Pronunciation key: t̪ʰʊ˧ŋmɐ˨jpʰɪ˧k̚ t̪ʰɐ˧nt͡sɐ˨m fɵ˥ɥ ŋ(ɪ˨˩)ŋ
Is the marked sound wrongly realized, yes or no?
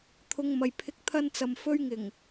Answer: no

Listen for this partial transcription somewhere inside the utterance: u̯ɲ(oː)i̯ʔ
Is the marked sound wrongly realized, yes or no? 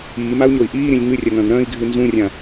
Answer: yes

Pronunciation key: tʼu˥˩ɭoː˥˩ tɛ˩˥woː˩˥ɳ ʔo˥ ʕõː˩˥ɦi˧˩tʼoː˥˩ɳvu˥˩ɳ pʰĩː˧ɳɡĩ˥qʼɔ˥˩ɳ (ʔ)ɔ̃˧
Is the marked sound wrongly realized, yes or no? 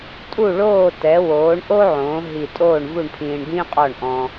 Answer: no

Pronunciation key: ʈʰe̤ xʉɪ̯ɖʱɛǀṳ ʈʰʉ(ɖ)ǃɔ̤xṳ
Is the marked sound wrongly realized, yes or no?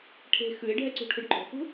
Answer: no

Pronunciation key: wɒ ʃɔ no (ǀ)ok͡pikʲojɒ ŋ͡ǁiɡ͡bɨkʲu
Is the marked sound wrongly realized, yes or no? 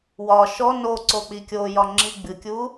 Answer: no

